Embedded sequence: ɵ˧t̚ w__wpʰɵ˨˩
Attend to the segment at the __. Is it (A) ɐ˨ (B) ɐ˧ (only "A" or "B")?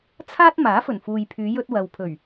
A